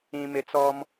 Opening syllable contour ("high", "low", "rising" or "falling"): low